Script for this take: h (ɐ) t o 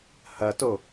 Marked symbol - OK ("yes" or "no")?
yes